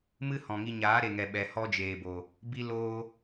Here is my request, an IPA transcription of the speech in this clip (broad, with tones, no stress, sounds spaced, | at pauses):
m ɨ˦ h ɔ̃˨ ŋ i˧ ɲ aː˨˦ ɾ e˨ ŋ ɛ˨ ɓ ɛ˨ h ɔ˦ d͡ʒ eː˨ b o˨ | b i˦ l oː˦